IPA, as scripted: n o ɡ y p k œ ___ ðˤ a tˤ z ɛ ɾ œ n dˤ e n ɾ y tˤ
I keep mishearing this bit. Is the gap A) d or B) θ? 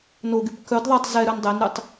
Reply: A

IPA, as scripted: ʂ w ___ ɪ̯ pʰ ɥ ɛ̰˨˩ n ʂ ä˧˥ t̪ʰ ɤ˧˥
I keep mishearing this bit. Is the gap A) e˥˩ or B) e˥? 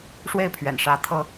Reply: A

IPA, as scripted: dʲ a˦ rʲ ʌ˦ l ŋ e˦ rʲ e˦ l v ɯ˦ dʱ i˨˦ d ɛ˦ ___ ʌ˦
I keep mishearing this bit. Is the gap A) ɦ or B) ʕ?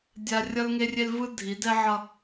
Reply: B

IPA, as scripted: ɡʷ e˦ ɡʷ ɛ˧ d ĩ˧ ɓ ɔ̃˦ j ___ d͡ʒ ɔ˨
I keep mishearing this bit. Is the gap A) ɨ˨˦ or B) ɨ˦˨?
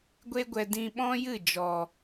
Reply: B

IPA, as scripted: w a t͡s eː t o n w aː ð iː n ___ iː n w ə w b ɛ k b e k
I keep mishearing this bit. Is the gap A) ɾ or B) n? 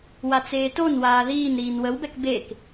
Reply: A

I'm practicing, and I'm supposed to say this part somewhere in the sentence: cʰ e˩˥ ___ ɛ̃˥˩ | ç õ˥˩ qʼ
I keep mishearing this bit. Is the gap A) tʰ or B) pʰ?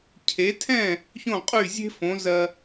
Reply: A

